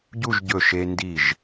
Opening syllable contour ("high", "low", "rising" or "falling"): falling